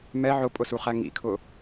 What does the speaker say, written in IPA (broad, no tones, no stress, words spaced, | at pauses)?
mɛ ʕʊpʼʊsuχæ ŋḭkʰʊ